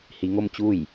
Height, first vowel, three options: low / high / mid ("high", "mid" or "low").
high